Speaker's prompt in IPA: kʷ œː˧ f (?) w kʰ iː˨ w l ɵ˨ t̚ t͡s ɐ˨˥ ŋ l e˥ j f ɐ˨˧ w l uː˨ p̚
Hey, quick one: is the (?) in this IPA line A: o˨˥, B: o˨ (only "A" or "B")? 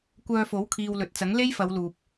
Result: A